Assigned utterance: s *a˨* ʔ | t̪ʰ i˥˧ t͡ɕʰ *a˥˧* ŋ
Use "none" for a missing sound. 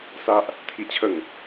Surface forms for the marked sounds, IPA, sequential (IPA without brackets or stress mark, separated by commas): a˦, ə˥˧